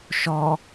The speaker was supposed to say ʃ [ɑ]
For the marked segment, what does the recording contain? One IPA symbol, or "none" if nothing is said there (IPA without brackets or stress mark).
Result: ɔ